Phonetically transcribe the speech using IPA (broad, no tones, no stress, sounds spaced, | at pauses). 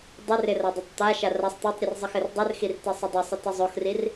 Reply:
dˤ ɪ r ɪ r a dˤ e tˤ t̪ a ʃ a r a sˤ t̪ e tˤ ɾʲ ɨ r zˤ ɨ x ɘ r dˤ ɨ r x i r t e sˤ ɘ dˤ ɪ sˤ ɘ t ɪ zˤ o x r i r